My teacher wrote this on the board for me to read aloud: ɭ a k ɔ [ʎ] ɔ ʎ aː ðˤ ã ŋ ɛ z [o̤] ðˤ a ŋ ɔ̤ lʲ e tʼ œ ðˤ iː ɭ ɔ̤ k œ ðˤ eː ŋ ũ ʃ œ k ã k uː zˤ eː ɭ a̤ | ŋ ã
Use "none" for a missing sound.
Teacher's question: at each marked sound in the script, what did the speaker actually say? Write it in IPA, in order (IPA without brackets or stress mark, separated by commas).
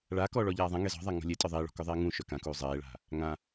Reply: ɭ, ɔ̤